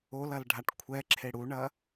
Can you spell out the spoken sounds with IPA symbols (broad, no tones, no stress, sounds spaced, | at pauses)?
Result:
o l ɐ l ɖʱ a ʈ kʷʰ ɛ ǁʰ e ɽ u ɳ ɐ